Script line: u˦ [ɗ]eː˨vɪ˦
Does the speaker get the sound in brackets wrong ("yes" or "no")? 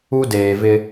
yes